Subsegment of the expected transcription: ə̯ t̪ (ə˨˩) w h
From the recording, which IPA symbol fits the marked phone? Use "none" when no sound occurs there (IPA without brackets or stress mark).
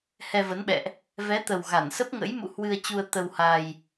ə˧